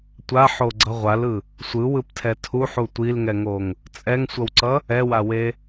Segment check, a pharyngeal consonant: present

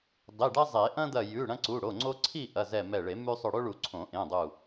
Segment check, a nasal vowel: present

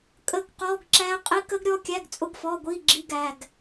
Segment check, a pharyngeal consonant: absent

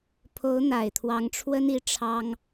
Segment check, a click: absent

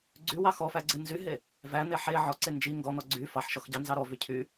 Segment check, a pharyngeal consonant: present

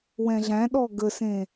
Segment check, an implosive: present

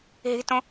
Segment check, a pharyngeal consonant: absent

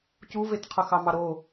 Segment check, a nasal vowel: absent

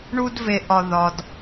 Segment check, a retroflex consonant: present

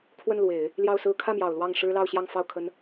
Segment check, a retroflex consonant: present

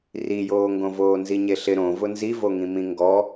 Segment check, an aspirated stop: absent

